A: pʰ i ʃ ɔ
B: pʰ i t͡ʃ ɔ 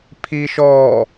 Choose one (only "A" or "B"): A